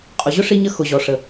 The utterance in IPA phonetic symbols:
qʼ ʊ˨ ʑ ʊ˦ ʂ i˧ ɲ ə˧ x ʊ˨ ʑ ɔ˨ ʂ ə˨

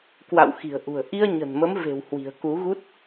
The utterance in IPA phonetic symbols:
k w a̰˧˨ w x i̤˨˩ ə̯ ʔ ṳ˨˩ ə̯ ʔ i˧ ə̯ ɲ ə̤˨˩ n m ə˨˦ m v e̤˨˩ w h w i̤˨˩ ə̯ k u˨˦ ɣ u˦˥ t̚

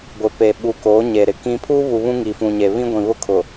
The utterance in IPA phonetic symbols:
ɡʷ ɪ˨ p e˨ ɓ u˨ k oː˨˦ ɲ e˨ ɾ ɪ˨ k ĩ˦ pʰ uː˦ β u˨ β ũ˦ ŋ i˨ f ũ˨ ɲ e˨ β ĩ˦ ɡʷ ĩ˨ β ʊ˦ kʰ ʊ˨

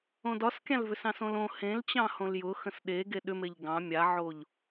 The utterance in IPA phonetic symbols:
õ d ɒ s kʲ ã l v ʏ s ɑ̃ s õ l õ h ẽ l t͡ɕ ɑ̃ h õ l j ʊ x ə̃ s ɗ e ɡ e ɗ ʏ m e ʎ ɡ ɑ̃ mʲ a ʕ o ʎ

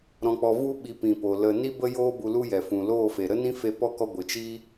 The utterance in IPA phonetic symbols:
ɾ ɔ̃˧ k͡p ɔ˧ v u˦ ɓ i˨˦ p ĩ˨ p o˨ l ə˧ n i˦ b ə˦ j oː˦ b u˧ l u˦ j ɛ˨ f ũ˨ l oː˦˨ f e˨ ɾ ə˦ n ĩ˦ f e˧ p ɔ˦˨ k ɔ˧ ɡʷ ɨ˨ t͡ʃ i˦

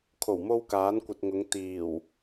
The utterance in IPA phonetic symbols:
kʰ o˨˩ w m o˧ w k aː˨˥ n kʷ ɐ˨ t̚ ŋ ʊ˨˧ ŋ t̪ iː˨˩ w

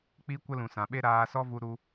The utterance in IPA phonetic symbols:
k͡p i˦ kʷ ə˦ l ũ˨ s ã˨ ɓ e˦ ɾ aː˧ s ɔ˦ v u˧ ɾ u˧

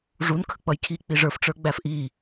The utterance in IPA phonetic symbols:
ʐ u n kʰ ə k͡p ʌ j kʰ i k͡p i ʐ ə˞ f ʈ͡ʂ ə˞ ɡ͡b æ f ʔ i

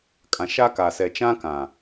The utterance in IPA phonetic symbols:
kʼ ã˨ ʃ a˦ k a˨ s ɛ˨ t͡ʃ ã˦ k ã˨

